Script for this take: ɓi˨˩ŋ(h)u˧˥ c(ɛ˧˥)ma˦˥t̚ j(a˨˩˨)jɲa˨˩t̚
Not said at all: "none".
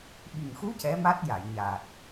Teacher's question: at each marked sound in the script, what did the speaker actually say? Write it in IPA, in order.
x, ɛ˧˥, a˨˩˨

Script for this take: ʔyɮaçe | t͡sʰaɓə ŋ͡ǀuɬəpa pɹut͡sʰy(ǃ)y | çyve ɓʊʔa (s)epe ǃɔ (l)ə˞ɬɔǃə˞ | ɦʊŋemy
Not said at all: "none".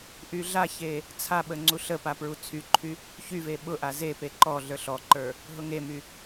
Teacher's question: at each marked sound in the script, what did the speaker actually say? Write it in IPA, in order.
ǃʰ, z, ɮ

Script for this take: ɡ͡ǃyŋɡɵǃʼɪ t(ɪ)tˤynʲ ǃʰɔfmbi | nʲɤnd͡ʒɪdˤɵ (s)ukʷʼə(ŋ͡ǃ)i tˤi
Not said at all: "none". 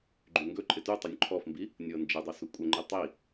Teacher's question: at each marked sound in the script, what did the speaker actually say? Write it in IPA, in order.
y, s, ŋ͡ǃ

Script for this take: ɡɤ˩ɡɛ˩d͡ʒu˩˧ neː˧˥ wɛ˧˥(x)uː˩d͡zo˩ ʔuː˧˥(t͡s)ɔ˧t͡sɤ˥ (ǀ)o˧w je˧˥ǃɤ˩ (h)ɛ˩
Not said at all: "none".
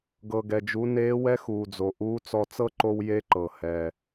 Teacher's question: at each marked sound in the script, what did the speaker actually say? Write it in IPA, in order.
x, t͡s, ǃ, h

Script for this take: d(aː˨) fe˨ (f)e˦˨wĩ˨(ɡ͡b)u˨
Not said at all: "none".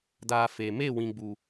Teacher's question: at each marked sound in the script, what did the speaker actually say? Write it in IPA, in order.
aː˨, m, ɡ͡b

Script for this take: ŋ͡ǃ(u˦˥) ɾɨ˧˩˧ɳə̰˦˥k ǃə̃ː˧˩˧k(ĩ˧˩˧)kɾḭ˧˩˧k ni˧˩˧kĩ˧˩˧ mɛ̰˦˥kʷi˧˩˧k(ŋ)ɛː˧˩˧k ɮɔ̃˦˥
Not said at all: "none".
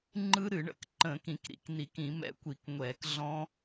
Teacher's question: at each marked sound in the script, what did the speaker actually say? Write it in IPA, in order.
ɯ˦˥, ĩ˧˩˧, ŋʷ

